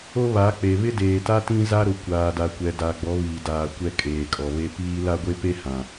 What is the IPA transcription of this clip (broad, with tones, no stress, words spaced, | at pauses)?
o˦βa˨˦k͡pe˨ βɪ˦deː˨ta˦ tĩ˦za˦ɾʊ˨ kʷaː˨da˨kʷɛ˨da˨ ɡ͡bɔ˨˦βiː˨daː˨ kʷɛ˦kʼeː˨kʼɔ˨βe˦ piː˦ la˦ɡʷe˦pe˦ hã˨